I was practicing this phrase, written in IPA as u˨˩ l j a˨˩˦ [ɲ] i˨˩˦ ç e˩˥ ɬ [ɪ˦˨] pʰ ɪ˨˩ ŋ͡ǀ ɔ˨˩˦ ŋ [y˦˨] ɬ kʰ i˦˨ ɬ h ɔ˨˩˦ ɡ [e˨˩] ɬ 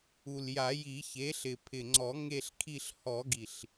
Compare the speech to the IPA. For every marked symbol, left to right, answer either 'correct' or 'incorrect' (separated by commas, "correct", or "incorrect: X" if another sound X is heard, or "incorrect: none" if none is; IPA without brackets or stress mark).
incorrect: j, incorrect: ɪ˨˩, incorrect: e˦˨, incorrect: i˨˩